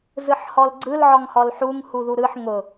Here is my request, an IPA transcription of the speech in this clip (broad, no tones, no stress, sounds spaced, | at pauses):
z ɯ ħ h ɔ l ɡ͡ǀ ɯ l ʕ ɔ ŋ h ɔ l ħ u ŋ h u ð u ɾ ɯ ħ ŋ ʊ